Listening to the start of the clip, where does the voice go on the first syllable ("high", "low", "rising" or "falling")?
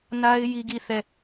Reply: high